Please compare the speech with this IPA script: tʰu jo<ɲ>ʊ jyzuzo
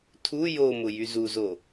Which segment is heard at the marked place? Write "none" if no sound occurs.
m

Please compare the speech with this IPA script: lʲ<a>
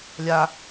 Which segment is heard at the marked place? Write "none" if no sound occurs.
a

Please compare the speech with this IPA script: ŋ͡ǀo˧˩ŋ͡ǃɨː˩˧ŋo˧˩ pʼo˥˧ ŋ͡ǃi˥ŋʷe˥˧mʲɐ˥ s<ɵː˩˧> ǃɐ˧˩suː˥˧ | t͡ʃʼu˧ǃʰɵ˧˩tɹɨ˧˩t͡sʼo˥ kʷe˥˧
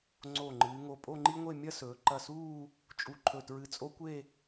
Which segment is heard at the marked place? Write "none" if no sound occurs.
ɵː˩˧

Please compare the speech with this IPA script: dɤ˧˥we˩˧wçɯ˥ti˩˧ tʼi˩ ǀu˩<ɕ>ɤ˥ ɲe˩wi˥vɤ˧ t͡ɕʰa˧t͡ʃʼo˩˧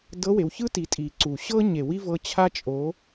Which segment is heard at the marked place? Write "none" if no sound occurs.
ɕ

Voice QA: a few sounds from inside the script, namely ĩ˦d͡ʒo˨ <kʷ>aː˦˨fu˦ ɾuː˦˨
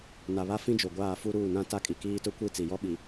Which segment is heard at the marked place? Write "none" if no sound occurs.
ɡʷ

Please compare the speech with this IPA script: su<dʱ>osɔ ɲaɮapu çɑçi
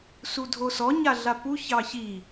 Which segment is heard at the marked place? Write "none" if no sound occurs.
dʱ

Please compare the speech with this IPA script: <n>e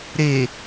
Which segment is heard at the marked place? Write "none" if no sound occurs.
ɾ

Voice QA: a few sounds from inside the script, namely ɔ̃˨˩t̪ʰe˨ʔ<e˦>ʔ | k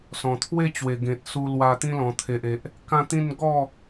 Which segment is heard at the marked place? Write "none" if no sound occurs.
e˨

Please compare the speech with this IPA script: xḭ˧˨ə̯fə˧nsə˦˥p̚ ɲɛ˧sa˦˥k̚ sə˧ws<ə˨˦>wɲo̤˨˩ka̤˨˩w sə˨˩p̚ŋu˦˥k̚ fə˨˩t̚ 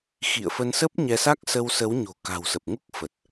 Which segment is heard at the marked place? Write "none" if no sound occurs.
ə˨˦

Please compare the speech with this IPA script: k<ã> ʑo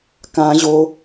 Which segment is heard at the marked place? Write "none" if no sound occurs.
ã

